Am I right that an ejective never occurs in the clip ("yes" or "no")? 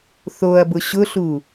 yes